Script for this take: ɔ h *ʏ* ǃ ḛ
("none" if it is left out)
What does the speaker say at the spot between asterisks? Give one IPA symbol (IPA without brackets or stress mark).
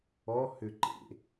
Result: ʏ